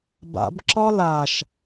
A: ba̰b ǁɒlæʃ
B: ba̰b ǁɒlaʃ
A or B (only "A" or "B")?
B